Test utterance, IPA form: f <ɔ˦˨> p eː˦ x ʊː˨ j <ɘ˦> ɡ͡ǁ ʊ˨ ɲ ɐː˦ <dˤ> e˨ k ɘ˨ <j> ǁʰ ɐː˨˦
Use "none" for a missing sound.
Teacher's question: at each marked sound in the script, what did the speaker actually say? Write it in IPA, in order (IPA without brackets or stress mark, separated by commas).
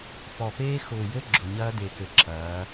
ɔ˨, ɘ˦, d̪, none